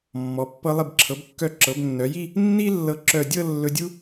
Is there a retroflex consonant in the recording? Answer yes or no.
no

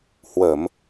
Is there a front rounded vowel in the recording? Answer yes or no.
no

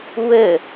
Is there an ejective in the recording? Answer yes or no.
no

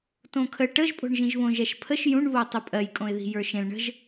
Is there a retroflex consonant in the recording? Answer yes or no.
yes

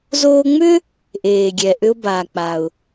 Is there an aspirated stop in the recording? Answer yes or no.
no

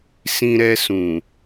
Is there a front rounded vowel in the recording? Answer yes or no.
no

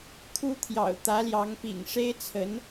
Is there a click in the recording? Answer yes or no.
no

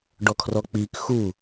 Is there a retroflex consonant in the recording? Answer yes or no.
yes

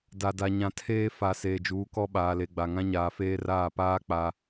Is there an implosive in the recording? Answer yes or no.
yes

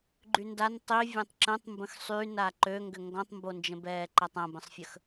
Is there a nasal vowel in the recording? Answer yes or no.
yes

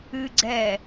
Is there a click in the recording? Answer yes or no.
yes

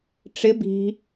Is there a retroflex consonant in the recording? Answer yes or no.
yes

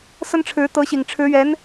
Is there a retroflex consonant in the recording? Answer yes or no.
yes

